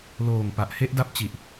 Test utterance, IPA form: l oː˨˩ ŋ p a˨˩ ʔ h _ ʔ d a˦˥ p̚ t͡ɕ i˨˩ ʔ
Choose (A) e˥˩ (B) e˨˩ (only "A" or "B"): A